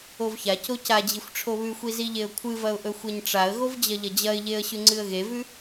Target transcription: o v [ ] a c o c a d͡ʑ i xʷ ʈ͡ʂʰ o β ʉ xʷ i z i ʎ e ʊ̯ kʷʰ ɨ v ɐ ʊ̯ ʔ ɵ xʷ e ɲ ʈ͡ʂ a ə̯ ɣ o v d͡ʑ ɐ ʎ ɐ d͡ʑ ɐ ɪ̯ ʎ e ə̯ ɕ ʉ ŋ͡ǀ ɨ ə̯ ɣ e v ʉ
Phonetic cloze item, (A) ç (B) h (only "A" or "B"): A